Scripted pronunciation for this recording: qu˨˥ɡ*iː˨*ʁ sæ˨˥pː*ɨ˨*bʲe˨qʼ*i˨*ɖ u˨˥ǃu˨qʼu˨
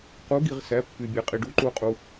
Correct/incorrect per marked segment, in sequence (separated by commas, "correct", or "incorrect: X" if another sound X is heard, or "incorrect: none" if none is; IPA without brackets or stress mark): incorrect: i˨, incorrect: y˨, correct